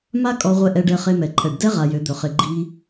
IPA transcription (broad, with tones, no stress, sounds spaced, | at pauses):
m a˦ kʼ ɔ˧ ʁʷ ɛ˧ ʔ ɛ˧ ɖ ɛ˧ χ e˧ m ɛ˨ ǃʰ ɛ˨ ɖ d ɛ˦ ʁ a˧ j ø˨˦ d̪ ɵ˨ χ ɪ˧ ɡ͡ǃ i˦